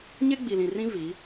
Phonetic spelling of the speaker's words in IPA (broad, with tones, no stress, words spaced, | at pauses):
ɲe˦ɡ͡bi˨lĩ˨rĩ˦ vi˨˦